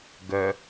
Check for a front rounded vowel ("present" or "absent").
present